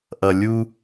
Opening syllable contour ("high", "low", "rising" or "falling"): low